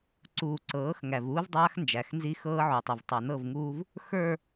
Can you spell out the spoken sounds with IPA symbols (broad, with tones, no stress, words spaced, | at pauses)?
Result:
ǀuː˨ǀɤː˨˦x ŋæ˨vuː˦vdˤaː˦x nd͡ʒæ˨xnzi˦ xɤː˦ʕu˨tˤi˨v tˤa˨nɤ˦˨vŋuː˦v | xə˞˨